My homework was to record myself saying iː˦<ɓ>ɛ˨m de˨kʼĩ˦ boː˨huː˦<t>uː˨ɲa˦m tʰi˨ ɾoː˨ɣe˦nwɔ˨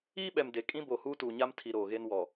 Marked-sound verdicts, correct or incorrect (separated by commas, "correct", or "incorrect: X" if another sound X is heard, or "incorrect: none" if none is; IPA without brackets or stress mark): correct, correct